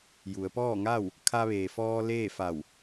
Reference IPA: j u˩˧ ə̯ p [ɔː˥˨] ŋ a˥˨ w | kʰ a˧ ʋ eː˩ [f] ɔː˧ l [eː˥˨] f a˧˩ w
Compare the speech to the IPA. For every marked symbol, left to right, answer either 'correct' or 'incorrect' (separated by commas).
correct, correct, correct